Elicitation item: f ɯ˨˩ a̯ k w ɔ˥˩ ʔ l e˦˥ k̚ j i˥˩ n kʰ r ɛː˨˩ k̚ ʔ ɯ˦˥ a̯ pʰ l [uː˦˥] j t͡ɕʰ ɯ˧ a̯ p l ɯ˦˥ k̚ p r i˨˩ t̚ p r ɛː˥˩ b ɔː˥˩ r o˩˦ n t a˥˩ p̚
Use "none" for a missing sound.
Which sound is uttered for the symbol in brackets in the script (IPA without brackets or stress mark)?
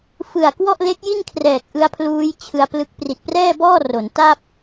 uː˦˥